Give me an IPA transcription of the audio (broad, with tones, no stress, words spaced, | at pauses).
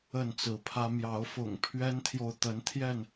ə˥˨nt͡sɹ̩˨˦pʰä˦ mjɑ˨˦ʊ̯fʊ̰˨˩ŋpʰɥɛ˦nt̪ʰjo˨ʊ̯ t̪ə˨˦nt̪ʰjɛ˥˨n